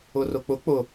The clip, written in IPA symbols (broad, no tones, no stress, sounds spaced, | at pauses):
ʊ r ʊ k͡p ʊ k͡p ʊ